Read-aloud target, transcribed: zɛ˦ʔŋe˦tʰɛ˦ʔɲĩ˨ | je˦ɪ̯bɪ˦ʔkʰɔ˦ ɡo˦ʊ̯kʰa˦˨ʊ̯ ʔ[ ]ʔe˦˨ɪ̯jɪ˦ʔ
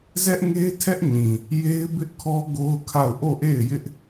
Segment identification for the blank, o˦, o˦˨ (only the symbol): o˦˨